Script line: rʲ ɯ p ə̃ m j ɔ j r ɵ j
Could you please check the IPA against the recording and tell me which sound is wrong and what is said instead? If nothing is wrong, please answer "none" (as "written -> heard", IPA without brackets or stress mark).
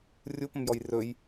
ɯ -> u